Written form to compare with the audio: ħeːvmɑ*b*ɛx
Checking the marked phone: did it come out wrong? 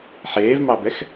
no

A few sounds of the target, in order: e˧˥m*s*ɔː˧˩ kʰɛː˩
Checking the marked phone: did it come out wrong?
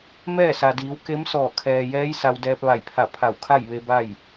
no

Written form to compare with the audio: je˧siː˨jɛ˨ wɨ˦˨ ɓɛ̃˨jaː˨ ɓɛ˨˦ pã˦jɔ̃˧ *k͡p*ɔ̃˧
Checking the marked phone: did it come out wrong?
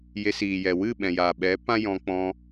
no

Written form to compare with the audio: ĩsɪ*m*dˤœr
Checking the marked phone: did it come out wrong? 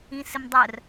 no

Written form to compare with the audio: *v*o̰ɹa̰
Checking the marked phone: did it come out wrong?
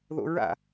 yes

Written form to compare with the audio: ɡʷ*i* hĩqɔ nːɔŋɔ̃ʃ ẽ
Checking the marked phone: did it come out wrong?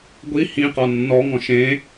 no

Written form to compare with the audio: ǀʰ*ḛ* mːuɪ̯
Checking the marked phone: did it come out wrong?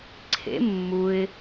no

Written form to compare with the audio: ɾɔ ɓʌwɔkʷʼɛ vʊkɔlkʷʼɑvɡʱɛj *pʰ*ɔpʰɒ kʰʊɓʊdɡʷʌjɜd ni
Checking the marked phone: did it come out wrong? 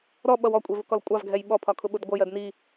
yes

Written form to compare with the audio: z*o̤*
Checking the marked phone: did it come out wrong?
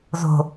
no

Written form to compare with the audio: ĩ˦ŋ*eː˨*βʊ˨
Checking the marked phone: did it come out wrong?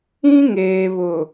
no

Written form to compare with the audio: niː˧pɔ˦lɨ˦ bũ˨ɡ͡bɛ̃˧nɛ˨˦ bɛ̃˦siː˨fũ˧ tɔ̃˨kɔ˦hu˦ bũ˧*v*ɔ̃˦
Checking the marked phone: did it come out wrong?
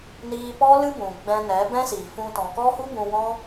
yes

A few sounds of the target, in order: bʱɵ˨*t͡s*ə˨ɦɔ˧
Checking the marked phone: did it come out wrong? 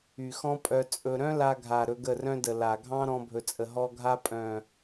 yes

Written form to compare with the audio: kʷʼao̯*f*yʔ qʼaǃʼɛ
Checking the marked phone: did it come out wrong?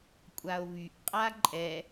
yes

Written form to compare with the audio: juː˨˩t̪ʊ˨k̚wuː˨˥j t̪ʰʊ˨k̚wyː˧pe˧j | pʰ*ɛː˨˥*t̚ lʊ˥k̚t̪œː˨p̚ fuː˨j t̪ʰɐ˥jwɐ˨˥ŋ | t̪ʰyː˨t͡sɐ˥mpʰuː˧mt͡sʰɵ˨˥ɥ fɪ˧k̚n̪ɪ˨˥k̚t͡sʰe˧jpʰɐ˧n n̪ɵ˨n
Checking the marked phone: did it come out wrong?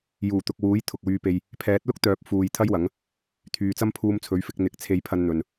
no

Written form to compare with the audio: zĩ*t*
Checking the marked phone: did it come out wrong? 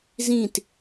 no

